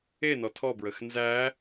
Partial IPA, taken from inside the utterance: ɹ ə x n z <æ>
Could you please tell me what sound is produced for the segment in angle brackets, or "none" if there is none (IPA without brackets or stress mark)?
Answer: æ